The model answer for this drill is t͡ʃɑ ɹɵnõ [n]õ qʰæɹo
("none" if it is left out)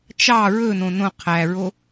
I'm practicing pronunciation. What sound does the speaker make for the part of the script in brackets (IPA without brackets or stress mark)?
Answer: n